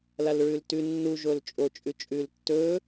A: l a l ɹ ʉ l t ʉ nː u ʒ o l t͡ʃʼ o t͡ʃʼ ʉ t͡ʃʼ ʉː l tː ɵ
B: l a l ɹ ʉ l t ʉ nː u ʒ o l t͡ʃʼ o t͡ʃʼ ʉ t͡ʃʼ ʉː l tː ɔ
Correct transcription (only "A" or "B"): A